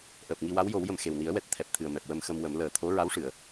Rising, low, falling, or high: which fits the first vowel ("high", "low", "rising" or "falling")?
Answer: low